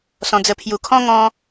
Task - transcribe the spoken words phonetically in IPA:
sɔ̃˧d͡zə˧ pʰju˨˩kʰɔ̃˦ŋɔ̃˧

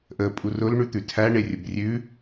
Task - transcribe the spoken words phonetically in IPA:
ʔə pʼurʊl ɳʉt̪ʉtʰæ ɳerʲʊbrʲʉ

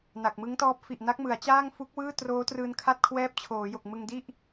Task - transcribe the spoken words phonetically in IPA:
na˨˩k̚ mɯ˦˥ŋtɔː˦˥p̚ fi˨˩ʔ na˦˥k̚mɯ˩˦a̯t͡ɕaː˥˩ŋ fu˦˥k̚wɯː˥˩ troː˦˥trɯː˧n kʰa˥˩t̚kʰwɛː˦˥p̚ t͡ɕʰoː˩˦jo˨˩k̚ mɯ˧ŋdi˥˩ʔ

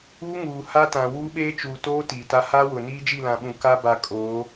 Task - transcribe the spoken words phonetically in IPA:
uː˦ŋuː˨ha˦tã˨ wuː˦ɓeː˦t͡ʃuː˨toː˦ tiː˨ta˦ ha˦wʊ˨ niː˦d͡ʒi˦˨lã˨ɓũ˨ ka˦ba˨ kʼoː˨˦

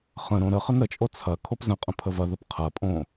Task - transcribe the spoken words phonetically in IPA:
χə̃ɾõ ɾə χənɾət͡ʃʼo t͡sʰɐ kʰopzə̃qʼə̃ pʰəvɐðəp qʰɐpʼõ

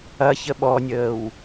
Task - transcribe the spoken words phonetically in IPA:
ɐ çəɓɔnʲəːw

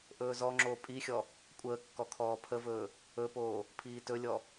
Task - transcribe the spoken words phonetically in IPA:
ʔɵːzɔŋ͡ǁoː pʼixʲɔ | kʷʼəː kːɔkʰɔːpʰəvɵː | ɵpoː | pʰiːtɵlʲɔ

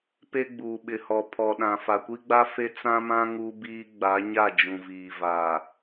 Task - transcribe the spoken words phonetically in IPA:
pe˦ɡ͡buː˨ɓɪ˨hɔ˨ pʰɔ˨ɗã˨ fa˨kʷi˦ɡ͡ba˦ fe˦ t͡sã˦mã˦ ŋu˦biː˦ ɡ͡ba˨˦ɲa˦˨ d͡ʒũ˨viː˨vaː˨

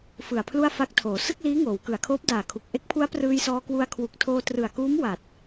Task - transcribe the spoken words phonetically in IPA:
fɯ˨˩a̯pʰlu˥˩a̯ fa˦˥k̚tʰoː˩˦ sɯ˥˩k̚liː˦˥ ŋoː˩˦wkɯ˩˦a̯kʰoː˦˥p̚ daː˨˩kʰu˨˩k̚ʔe˦˥k̚pʰu˦˥a̯ prɯː˧jsɔː˧kwu˧a̯ kʰwu˨˩k̚tʰoː˧trɯ˨˩a̯kuː˦˥m wa˨˩t̚

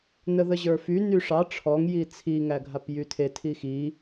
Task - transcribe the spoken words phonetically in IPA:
nəðəʑə˞fy nyʂɑ ʈ͡ʂʰɔŋ jit͡sʰi ŋæɡʱapjytʰe tʰixi

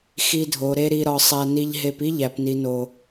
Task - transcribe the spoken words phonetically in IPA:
xi˧dʱo˨ ɾe˦ɾi˧ɾɒ˧sˤæ˧ ni˧ʎɦe˧p i˦ʎæ˨pni˨no˨

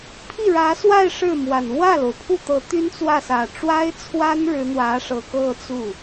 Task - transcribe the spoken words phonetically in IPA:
pʰi˥˩ɻä˧˥swa˥˧ɪ̯ ʂɻ̩˥˩mwa˨˩n wä˥˩lo˩ʊ̯pʰu˥˩t̪ɤ˧˥ t̪y˥nt͡swä˥˩sä˨˩ ʈ͡ʂwa˥ɪ̯t͡sʰwa˥nɻɻ̩˧˥ n̪wä˧˥ʂɤ˨˩kɤ˥˧ t͡su˥˩

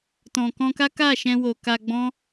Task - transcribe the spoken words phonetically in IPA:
tɔ̃˨ kɔ̃˧ka˦ ka˦˨ʃɛ̃˧wo˨ ka˧ɡ͡bɔ̃˦

